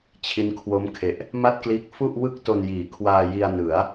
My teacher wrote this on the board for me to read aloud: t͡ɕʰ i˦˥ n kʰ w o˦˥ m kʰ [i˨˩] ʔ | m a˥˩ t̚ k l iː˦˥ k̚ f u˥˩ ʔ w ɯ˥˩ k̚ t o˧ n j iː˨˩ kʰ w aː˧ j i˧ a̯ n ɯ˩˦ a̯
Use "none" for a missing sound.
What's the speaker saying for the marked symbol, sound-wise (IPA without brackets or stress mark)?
e˨˩